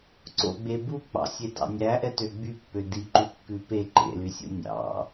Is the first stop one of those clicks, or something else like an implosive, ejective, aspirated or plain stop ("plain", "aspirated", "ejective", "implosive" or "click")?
click